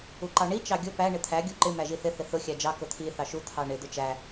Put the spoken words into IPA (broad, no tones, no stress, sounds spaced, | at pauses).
u ǃ ɑ ɳ i t͡ʃ ɑ ɡʲ ʊ p æ ɳ ɪ t̪ʰ æ ɡʲ u ǃ ɪ m æ ʒ i θ ɪ θ ɪ θ ʊ xʲ æ d͡ʒ ɑ k ʊ t̪ʰ i θ ɑ ʃ u t̪ʰ ɑ ɳ ɪ d̪ ʊ t͡ʃ æ